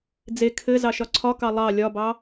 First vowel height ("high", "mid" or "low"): mid